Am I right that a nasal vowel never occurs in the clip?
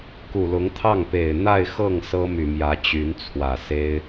yes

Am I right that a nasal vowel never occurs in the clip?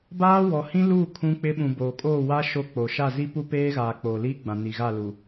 no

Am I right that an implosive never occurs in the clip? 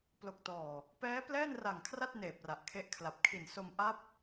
yes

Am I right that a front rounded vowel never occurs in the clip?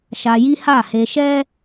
yes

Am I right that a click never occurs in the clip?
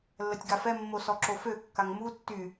no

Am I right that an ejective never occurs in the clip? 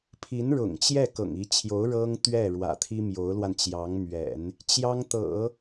yes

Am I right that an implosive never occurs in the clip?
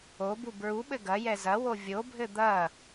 no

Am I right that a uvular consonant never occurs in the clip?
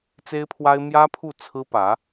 yes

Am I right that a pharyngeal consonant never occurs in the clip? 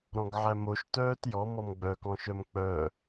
no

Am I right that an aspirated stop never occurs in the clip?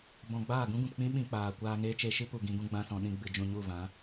yes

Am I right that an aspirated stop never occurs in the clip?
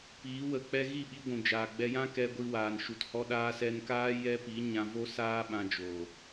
yes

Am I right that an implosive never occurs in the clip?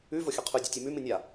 yes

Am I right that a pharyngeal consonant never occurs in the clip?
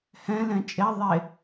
yes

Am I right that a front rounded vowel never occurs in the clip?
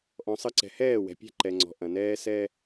yes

